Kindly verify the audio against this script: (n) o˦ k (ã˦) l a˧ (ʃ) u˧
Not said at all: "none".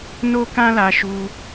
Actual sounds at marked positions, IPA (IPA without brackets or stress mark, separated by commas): n, ã˦, ʃ